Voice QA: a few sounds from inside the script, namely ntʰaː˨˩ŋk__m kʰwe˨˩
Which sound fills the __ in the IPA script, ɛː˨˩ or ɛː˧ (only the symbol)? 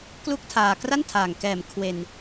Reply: ɛː˨˩